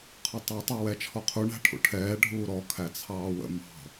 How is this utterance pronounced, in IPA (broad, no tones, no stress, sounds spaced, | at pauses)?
qʰ ʌ tˤ ɑ tˤ ɛ w ɛ t͡ʃʰ ɔ qʰ u ɳ æ̤ ʈʰ ṵ ʈʰ ɛː ɖʱ uː ɾ ɔ kʰ æ t͡sʰ ɑː w ə̰ m ɑ̤